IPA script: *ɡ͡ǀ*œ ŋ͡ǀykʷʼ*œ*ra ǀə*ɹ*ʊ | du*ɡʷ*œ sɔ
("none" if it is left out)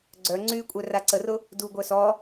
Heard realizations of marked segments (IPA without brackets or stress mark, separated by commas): ɡ͡ǀ, œ, r, ɡʷ